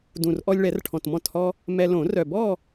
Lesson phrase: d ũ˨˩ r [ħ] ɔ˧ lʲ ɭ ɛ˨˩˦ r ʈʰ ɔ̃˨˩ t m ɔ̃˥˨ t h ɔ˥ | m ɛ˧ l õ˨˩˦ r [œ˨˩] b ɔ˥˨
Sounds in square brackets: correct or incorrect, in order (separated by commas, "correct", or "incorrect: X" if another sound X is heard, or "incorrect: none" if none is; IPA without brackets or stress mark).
incorrect: ʔ, correct